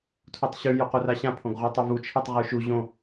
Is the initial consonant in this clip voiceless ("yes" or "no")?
yes